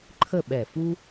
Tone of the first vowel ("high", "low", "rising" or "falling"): falling